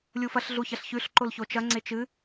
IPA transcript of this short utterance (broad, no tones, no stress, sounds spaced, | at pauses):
lʲ u f ɐ ɬ ɮ u ç ɐ ɬ ç ʉ ɬ ǃ o l ç o t͡ʃ ɐ ŋ͡ǀ e t͡ʃ ɨ